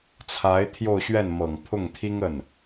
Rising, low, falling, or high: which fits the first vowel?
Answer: rising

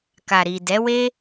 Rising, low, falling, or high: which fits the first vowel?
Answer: low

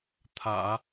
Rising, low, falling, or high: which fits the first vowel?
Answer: low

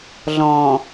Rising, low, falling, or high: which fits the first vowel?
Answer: low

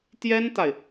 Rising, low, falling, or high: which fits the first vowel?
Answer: high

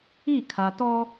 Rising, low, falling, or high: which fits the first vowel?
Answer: falling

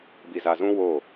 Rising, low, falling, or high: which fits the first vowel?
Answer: low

